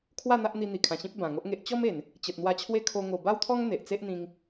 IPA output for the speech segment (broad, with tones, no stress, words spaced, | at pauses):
kʰwa˥˧ n̪a˦ʔn̪i˧n̪i˨˩ kʰã˨˩ɕĩ˦p̚ bã˨˩ŋo˦ʔŋe˦ʔ t͡ɕɔ˦me˨˩n | t͡ɕə˨t̚n̪wa˧t͡ɕʰwe˦ kʰo˧ ŋo˨˩ba˦wt̪ʰɔ˦ŋ n̪e˨ʔt͡se˦ʔn̪ĩ˧ŋ